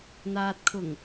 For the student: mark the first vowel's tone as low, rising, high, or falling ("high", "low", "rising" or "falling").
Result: low